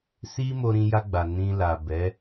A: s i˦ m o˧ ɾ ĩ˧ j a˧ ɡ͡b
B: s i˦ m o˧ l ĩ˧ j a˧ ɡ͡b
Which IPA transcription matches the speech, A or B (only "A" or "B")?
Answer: A